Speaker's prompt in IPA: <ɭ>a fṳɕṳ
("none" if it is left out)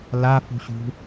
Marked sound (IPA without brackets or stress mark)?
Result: l